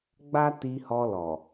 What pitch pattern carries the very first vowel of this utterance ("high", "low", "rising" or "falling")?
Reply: high